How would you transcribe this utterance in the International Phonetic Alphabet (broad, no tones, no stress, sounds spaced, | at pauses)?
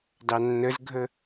d ɑ nː ə z ɡʱ ə